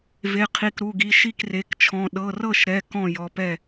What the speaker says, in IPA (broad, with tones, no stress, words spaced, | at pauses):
ve˩˧˩qʰi˩˧˩kɾu˩˧˩ɡi˩˧˩ ʃi˥˩kre˩˧˩kt͡ʃʰɔ̃˩˧˩ ɗɤ˩˧˩rɤ˥˩ʃɾɛ˩˧˩ kɔ̃˥˩ jɔ˩˧˩pɛ˥˩